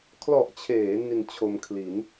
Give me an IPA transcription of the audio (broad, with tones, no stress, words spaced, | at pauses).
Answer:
kʰlɔ˨˩ʔt͡ɕʰeː˩˦ ni˧nt͡ɕʰo˧m kʰli˩˦n